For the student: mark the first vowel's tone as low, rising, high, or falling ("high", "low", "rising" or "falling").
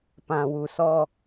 low